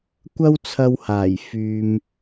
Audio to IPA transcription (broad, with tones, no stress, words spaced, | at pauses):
kʷɐ˥wt͡sʰɐ˧whaː˨˩j fyː˧m